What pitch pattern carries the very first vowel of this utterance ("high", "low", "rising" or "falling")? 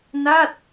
falling